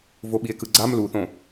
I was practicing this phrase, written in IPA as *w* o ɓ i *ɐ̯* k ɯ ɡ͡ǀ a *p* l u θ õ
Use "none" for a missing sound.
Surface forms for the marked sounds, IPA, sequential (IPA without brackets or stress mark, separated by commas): v, e̯, m